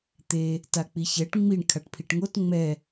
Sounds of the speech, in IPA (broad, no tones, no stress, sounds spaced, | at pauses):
t̪ e | t a k͡p i ç ɛ ʈ ŋ͡m i ɳ kʰ a ʈ pʰ i ʈ ŋ o t ŋ͡m ɛ